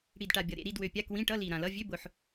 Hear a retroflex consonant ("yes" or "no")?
yes